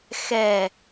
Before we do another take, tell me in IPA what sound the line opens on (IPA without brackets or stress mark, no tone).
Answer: x